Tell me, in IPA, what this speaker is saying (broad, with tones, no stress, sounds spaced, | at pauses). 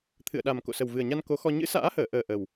t̪ʰ ɨ̰˧˨ ə̯ ɗ a˨˩ m k o̰˧˨ s ə˨˩ w v ɨ˨˩ ə̯ ɲ a˧ n k o˨˦ x ɔ˧ ɲ ɨ̰˧˥ s a̰ː˧˥ h əː˧˩ ʔ əː˨˩ ʔ ə˨˩ w